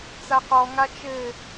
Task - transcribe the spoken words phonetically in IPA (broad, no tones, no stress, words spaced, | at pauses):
t͡saqɔŋa t͡ʃɘ